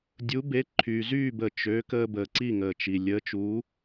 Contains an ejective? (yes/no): no